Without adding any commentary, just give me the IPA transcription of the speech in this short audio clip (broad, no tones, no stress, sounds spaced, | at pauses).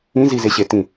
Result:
ĩ z i z e ɕ e t ĩ